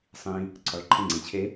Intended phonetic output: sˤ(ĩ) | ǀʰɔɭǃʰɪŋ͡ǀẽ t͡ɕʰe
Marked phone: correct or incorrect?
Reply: correct